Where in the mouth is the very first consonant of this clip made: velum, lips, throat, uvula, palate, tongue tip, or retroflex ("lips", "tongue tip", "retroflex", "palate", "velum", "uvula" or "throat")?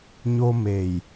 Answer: palate